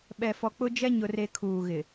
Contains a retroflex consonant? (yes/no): no